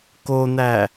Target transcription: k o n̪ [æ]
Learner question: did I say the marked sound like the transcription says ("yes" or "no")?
yes